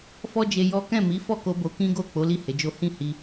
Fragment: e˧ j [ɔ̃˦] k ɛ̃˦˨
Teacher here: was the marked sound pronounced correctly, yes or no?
no